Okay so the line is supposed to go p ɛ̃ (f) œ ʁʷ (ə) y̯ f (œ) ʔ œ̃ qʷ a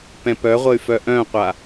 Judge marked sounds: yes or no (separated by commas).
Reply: no, yes, yes